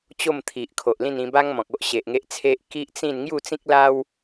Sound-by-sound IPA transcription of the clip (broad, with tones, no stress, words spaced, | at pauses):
t͡ɕo˥˧mt̪ʰi˨ʔ kʰo˨ʔlĩ˥˧n ĩ˧ba˦ŋ mɔ̃˨k̚o˦ʔ ɕe˨ʔŋe˦ʔt͡sʰe˦ʔ ki˦ʔt͡sĩ˥˧n ŋju˥˧t͡sĩ˦k̚la˦w